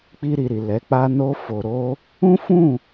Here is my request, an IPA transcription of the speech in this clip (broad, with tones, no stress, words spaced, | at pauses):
k͡pi˧ɾi˨ɾi˨ lɛ˨˦ k͡pa˧no˧ fo˨ɾo˧ | ũ˦fũ˦˨